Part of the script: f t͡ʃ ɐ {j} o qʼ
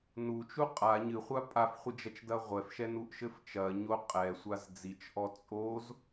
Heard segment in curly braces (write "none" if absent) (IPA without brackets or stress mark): ɲ